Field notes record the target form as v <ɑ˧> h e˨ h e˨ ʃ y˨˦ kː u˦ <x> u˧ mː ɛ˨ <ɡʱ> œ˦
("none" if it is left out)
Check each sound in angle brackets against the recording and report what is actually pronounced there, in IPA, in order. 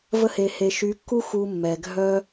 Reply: ə˧, x, ɡʱ

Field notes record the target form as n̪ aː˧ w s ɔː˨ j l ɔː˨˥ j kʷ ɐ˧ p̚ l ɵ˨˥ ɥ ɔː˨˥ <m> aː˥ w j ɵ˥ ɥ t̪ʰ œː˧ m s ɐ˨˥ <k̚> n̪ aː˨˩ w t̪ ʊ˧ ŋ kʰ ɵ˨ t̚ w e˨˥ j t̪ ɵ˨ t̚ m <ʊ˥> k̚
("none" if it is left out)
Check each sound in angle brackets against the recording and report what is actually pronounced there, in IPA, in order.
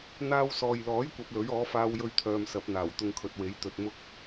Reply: f, p̚, ʊ˥

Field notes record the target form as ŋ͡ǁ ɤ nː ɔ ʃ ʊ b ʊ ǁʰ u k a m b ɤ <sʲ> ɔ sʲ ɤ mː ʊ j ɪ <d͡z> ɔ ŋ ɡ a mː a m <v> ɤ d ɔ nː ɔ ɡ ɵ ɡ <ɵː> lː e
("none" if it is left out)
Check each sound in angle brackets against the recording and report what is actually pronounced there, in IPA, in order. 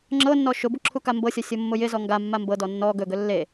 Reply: sʲ, z, b, ɵ

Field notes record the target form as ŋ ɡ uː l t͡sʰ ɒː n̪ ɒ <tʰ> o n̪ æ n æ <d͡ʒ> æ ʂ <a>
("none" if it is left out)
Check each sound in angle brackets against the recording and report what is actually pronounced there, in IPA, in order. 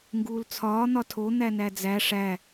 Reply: tʰ, d͡z, æ

